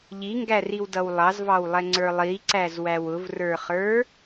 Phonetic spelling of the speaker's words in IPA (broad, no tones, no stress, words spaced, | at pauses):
ʎiŋɡæriwdʌw lˠɑzvɑwlˠɛŋ͡ǀə˞ lˠiǀæzwæw ʊvrə˞χə˞